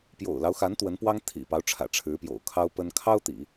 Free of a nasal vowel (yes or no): yes